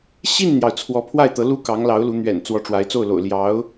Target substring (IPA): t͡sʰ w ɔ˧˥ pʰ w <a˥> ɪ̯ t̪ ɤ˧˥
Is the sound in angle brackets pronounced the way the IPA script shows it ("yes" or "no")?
no